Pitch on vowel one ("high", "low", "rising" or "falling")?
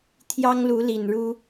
high